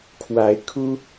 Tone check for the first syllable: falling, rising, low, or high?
rising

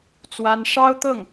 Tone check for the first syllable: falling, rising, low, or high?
high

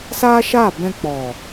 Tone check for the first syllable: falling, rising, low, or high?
high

